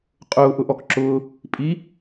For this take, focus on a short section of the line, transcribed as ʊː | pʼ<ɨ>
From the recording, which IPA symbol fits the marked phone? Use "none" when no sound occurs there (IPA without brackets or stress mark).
i